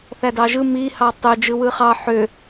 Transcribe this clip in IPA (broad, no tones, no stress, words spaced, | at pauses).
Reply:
θædɑʒɯ mi hɑtˤø d͡ʒɯwɯχɑ ħø